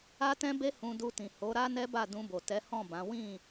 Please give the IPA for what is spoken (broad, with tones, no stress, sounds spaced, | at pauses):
a˦ t ɛ̃˦ b e˦ h ũ˧ d u˧ t ĩ˨ h o˨˦ ɾ a˦ n ɛ˦ b a˦˨ d ũ˧ b o˨ t ɛ˨˦ h ɔ̃˦˨ b ã˨˦ w ĩ˦˨